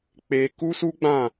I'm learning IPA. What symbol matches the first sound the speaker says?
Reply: k͡p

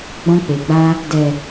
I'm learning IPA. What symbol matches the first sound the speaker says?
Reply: ɡ͡b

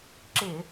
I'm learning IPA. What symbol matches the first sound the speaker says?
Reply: ǁ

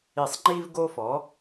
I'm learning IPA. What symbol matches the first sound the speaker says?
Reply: i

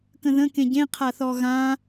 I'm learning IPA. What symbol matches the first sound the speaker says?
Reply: k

